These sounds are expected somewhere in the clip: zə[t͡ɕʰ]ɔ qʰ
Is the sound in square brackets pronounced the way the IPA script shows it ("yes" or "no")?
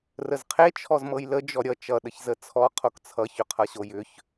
no